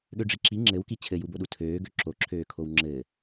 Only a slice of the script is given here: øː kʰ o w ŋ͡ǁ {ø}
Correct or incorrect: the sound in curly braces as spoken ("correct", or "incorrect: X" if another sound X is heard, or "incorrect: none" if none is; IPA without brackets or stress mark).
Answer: incorrect: ɘ